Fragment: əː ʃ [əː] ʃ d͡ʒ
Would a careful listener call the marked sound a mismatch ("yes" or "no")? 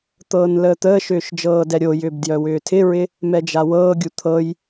yes